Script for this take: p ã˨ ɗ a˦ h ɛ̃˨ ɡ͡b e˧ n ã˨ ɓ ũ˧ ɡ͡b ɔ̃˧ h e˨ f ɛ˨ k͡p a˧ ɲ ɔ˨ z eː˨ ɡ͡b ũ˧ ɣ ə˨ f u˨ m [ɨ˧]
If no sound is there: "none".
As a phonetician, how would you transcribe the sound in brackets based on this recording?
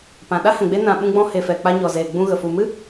ɨ˦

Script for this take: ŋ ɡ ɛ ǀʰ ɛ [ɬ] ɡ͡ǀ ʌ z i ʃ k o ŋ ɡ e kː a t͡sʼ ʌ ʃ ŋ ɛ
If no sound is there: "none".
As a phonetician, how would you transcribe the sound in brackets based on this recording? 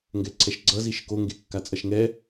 ʃ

